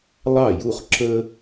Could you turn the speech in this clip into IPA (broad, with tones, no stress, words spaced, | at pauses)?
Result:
lˠɑ˥˩ju˥˩χ ǁə˥